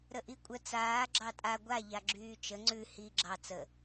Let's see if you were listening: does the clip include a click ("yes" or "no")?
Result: yes